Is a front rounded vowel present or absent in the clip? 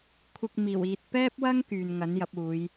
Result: present